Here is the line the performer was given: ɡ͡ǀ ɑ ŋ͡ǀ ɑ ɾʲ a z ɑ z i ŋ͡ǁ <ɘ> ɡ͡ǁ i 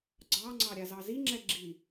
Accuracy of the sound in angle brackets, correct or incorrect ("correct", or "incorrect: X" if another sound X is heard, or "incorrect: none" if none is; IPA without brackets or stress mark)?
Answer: incorrect: ɛ